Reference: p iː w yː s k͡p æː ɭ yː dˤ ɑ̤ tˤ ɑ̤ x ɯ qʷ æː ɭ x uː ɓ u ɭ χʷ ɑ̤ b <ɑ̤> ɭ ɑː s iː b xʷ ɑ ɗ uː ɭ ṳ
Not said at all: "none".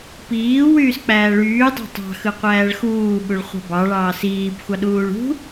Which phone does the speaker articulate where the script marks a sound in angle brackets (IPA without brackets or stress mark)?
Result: ɑ